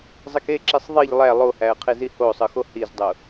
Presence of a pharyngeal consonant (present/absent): absent